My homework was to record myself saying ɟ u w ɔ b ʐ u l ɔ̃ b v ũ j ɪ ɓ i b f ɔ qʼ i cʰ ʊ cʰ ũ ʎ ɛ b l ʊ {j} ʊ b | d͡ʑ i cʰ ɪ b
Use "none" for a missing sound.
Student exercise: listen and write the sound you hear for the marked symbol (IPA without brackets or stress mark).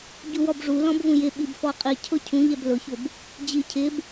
ç